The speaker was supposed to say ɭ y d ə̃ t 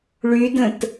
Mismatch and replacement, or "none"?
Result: none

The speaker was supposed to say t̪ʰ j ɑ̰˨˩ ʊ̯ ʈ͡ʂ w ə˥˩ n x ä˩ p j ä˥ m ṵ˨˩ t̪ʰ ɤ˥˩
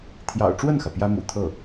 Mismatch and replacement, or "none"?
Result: none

